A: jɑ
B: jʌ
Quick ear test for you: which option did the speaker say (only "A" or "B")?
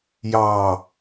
A